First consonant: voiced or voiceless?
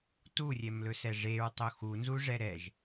voiceless